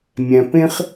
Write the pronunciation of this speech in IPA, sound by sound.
mʲæ̃˨pẽ˦χ

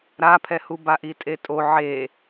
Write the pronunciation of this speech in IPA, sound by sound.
ɾapʰɛhu baʔitʼetʼo ʕe

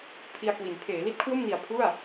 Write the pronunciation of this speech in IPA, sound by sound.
pʰi˧a̯kwi˩˦n pʰeː˩˦li˥˩t̚kʰwo˥˩mni˨˩a̯ pʰu˥˩a̯

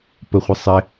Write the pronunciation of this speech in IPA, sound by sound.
pəχʷɨ sˤɪ

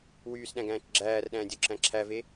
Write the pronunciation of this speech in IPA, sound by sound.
wyːsɗæ̃ɡæ̃ːt͡ʃ ɡ͡ǁæːrɗæ̃ːdʲoǁæ̃ ǁʰæve

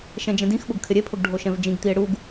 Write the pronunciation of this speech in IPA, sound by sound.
ʃɛ̃d͡ʒɛ̃dĩxɓʊɡ kʰɪɾʲepʰʊɡ ɖʱoʃɛ̃vd͡ʒĩɡt̪ie̯ ɽuɡ

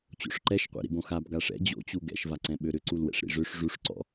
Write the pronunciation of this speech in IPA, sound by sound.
t͡ɕo̰ʂǃɛʃqʷɛ̰ ɾḭbõxab ɡaʂɛ̰ d͡ʑo̰t͡ɕu ɡɛ̰ʃvaǀɛ̃ ɓøɾʏǀul wɛ̰ʂɾḭʐøʂ ʐuʂǀɔ̰

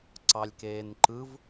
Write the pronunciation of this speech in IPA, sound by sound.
ǀɑlʲkeːnǃɯv

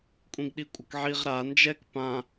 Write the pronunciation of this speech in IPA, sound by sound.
kʷʼĩɡɗikʷʼʌkʕiʁ ɾa nd͡ʒɛk pã

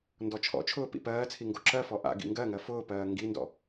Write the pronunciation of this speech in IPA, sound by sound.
ndɔt͡ʃʰɔ̰t͡ʃʰʊː pḭpɜːt͡sʰi ŋɡoǁɜfɔ ʔa̰ ɡḭŋɡɜŋɜ fʊːpɜː ŋɡindɔ̰

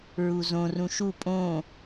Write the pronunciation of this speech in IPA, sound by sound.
ɹuzõr ũʃu pʼõ

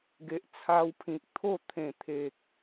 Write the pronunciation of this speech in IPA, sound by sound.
ɡe˨ʔt͡sʰa˧wpʰĩ˨k̚ t̪ʰo˥˧ t̪ʰẽ˨˩ t̪ʰe˨k̚

